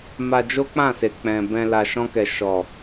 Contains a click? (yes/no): no